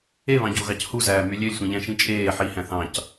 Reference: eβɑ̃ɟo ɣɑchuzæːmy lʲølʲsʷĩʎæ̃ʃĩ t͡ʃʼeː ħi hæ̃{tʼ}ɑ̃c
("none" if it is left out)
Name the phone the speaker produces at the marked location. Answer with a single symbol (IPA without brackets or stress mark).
θ